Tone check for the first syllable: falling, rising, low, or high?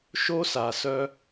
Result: high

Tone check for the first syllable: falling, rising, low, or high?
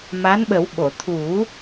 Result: rising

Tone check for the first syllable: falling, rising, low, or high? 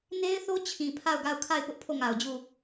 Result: high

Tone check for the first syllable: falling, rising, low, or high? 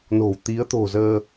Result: low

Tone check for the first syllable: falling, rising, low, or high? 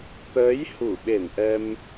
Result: rising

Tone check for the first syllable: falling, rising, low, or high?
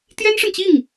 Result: high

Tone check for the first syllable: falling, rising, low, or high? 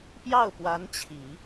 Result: falling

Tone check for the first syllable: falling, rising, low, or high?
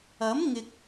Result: rising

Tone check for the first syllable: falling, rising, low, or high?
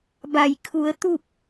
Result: low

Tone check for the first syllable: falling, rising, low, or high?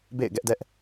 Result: falling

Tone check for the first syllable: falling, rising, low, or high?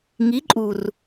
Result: rising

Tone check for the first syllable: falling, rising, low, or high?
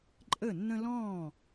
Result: falling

